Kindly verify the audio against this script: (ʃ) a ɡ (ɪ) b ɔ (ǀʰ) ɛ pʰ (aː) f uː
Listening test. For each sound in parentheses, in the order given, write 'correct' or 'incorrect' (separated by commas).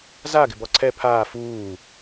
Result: incorrect, correct, correct, correct